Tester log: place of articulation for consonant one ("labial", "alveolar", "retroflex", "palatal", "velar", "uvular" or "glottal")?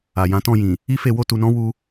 palatal